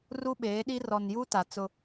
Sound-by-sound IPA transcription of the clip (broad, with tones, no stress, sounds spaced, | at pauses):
r u˦ ɓ eː˨˦ ɗ i˦ r ɔ˨ n j uː˦ t a˨ t͡s ʊ˦